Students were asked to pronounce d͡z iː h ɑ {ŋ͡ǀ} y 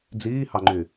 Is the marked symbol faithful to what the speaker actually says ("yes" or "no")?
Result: no